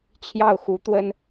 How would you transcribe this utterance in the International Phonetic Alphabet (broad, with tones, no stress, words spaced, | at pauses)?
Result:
t͡ɕʰjɑ˥˩ʊ̯xu˧˥t̪wə˥n